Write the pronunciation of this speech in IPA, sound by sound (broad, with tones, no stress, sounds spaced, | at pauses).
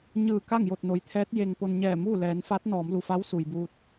ɲ ɯː˧˩ k a˥˨ ŋ j o˧˩ t̚ n o˩ j t̪ʰ ɛː˧˥ t̚ j e˧ ŋ p o˧ n ɲ ɛː˧˩ m uː˥˨ l ɛː˩˧ n f a˧˥ t̚ n ɔː˩˧ m l u˩ f a˧˥ w s u˩ j b uː˧ t̚